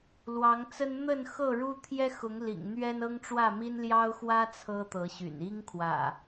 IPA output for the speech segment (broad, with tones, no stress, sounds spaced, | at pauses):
l w ɑ˨˦ ŋ t͡s ə˦ n n̪ ə˥˨ n x ɤ˥˨ ɻ u˦ t̪ʰ j ɛ˦ x ʊ˨˦ ŋ l ḭ˨˩ ŋ n̪ ɥ ɛ˦ n ɤ˦ ŋ ʈ͡ʂ w ä˥˨ m i˦ n l j ɑ˦ ʊ̯ x w ä˦ t͡sʰ ɤ˦ t̪ ɤ˨˦ ɕ y̰˨˩ n i˦ ŋ kʰ w ä̰˨˩